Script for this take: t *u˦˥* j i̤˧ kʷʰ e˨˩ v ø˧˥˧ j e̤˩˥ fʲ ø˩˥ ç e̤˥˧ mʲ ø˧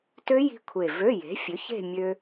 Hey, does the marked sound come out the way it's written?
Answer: no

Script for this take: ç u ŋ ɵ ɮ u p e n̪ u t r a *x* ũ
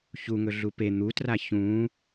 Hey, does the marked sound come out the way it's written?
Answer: no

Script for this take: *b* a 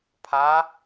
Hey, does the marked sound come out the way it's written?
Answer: no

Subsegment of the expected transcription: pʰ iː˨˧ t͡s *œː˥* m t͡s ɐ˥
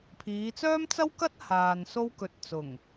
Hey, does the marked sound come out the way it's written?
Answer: yes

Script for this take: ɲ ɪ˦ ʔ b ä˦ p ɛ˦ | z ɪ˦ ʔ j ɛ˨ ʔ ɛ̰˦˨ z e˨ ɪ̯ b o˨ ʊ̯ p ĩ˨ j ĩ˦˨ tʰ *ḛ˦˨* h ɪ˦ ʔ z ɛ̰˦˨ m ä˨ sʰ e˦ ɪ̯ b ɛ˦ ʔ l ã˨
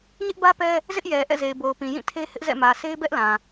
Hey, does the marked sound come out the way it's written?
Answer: no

